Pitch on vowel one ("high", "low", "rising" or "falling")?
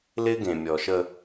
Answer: high